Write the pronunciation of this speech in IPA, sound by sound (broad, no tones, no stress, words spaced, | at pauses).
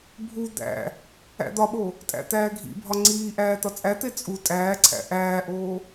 bʱu d̪æ̰ | æ̰d̪ɒɓo | tʼæ̰t̪æːɡʱḭbʱɒ ŋ͡ǀiːʔæː t̪ɒt͡sʼæt̪e t͡sʼu tʼæːǀʰæ̰ ʔæːʔoː